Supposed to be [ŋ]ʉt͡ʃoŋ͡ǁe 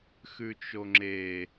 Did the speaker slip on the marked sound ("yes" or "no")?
yes